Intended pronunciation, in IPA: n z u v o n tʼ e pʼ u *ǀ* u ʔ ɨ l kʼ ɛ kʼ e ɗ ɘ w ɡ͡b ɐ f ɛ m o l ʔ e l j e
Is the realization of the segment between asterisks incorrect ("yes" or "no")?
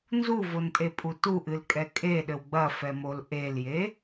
yes